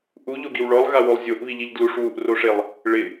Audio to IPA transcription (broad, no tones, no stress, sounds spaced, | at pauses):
ʔ u ʎ o ɡ i w ɭ ɔ lˠ ɣ a w o lˠ zʲ o ʔ β i ʎ i ʎ d l u ʂ w u ʔ r o ʂ e lˠ | ɭ ɪ